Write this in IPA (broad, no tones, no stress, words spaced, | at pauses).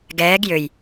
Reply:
ɡɛːɡ jøj